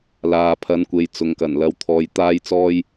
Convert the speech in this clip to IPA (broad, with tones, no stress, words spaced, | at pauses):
laː˨pʰɐ˨˧nkʷe˨j t͡sʊ˨ŋkɐ˨˩nlɐ˨˧w t̪ʰɔː˨jt̪aː˧jt͡sɔː˧j